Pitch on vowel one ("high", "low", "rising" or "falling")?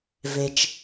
high